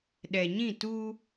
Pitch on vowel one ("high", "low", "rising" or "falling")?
low